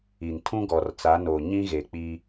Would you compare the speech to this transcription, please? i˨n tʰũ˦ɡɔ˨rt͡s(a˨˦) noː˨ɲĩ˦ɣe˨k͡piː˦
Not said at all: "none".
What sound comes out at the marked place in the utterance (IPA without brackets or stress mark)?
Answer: a˨˦